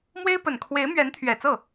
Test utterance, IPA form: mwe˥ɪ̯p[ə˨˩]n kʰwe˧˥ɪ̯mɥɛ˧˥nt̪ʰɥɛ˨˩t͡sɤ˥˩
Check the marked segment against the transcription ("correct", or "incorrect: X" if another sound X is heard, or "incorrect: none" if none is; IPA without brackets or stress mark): correct